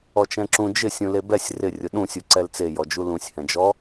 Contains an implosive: yes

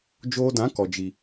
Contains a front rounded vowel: no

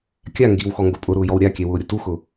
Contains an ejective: yes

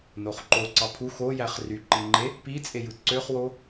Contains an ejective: yes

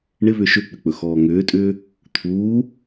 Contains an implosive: no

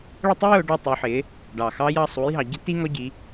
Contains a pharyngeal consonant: yes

